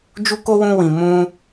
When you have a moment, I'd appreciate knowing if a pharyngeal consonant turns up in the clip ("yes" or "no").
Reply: no